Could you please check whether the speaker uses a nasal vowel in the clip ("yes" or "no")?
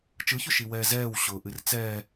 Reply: no